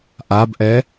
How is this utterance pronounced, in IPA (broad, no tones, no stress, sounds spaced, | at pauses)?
ʔ a b ʔ ɛ